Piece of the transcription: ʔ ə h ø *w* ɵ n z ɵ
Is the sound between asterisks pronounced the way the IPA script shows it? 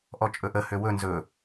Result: yes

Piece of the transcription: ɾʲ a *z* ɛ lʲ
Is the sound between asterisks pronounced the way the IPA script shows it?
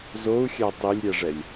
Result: no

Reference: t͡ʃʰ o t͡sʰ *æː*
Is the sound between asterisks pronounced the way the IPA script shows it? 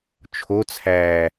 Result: yes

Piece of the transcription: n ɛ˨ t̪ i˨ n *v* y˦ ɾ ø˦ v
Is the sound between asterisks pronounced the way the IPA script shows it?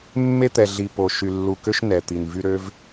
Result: yes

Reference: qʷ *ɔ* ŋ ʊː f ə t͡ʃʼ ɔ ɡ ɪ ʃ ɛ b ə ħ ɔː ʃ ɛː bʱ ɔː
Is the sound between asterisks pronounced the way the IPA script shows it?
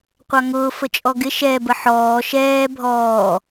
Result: no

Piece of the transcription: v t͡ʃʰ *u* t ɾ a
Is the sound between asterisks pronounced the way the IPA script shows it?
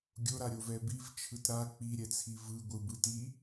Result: no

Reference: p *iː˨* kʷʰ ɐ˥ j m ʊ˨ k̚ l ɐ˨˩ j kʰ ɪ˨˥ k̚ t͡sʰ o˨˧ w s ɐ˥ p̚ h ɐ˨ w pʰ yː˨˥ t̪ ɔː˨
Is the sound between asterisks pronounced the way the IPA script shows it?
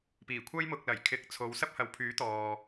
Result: no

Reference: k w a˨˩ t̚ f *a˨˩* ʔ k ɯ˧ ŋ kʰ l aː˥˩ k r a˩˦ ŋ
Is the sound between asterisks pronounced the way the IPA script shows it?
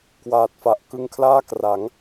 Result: yes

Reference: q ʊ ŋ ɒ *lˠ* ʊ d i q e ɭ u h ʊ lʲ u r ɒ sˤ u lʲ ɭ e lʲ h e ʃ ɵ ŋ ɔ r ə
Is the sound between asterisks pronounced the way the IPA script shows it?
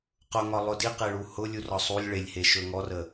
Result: yes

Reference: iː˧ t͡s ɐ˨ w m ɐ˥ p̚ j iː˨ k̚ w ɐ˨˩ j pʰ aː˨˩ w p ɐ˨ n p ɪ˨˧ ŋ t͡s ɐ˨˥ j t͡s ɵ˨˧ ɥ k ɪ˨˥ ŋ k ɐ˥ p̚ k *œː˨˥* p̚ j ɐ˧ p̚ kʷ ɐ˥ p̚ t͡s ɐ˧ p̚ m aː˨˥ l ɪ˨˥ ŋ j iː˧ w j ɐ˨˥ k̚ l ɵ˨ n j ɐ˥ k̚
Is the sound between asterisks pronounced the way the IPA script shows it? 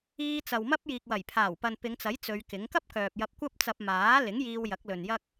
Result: no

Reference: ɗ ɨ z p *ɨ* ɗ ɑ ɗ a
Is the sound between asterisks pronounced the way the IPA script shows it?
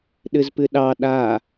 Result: yes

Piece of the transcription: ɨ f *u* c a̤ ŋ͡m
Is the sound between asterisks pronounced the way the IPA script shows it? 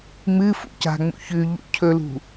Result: no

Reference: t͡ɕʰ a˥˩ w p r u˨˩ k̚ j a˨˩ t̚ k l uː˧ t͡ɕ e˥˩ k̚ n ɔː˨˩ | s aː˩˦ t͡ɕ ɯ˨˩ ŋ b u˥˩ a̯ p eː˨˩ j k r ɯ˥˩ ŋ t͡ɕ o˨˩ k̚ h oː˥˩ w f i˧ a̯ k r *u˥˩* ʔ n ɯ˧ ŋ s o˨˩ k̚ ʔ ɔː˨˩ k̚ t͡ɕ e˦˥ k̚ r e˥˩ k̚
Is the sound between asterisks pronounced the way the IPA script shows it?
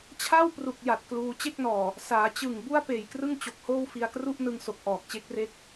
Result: yes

